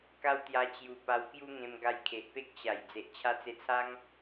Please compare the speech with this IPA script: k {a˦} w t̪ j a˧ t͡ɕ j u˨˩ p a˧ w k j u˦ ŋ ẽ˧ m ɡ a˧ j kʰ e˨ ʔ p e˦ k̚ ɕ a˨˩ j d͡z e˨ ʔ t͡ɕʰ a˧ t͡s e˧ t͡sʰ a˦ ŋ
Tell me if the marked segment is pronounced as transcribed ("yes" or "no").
yes